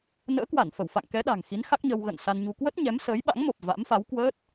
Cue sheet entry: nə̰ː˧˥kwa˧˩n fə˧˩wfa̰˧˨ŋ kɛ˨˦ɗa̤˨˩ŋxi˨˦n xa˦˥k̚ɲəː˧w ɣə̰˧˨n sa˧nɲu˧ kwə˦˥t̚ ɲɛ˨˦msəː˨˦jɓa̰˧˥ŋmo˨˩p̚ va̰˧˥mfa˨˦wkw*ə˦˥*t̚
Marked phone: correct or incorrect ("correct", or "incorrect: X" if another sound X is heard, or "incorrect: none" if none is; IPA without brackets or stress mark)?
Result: incorrect: əː˦˥